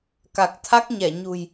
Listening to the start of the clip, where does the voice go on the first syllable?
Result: low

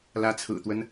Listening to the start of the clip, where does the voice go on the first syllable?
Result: rising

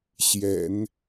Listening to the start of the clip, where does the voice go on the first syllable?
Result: low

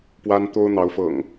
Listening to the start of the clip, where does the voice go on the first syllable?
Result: high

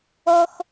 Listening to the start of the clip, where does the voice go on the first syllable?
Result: high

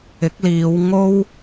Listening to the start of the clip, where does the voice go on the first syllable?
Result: rising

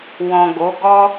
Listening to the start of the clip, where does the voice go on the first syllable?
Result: low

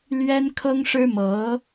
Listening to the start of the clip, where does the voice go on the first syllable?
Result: high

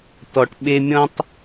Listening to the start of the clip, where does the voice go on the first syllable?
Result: low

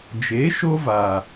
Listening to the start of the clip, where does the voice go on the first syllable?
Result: rising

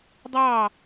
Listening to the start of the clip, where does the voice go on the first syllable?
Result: falling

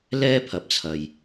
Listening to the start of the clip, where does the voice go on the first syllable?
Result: high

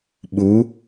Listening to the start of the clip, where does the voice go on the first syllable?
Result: rising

